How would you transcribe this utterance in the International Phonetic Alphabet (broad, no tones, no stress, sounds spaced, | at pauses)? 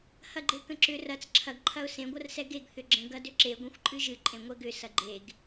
h ɐ ɡ͡ǃ e k ə̃ ǁ ʏ r ɐ t͡s ǁʰ ɐ ɡ ǃʰ ɐ ʊ̯ s ẽ ɡʷ ɐ r s ɛ ɡ e ɡ θ ʏ ɡ͡ǁ ə̃ ɡ ɐ d ʏ ǁ e ɡʷ ẽ xʷ ǃʼ ɨ ʒ ɨ ǃʼ ẽ ŋʷ ɛ ɡ ʏ s ɐ ɡ͡ǃ e ɡ